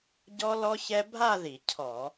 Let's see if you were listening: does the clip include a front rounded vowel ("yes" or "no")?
no